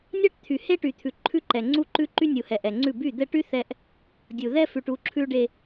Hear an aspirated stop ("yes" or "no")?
yes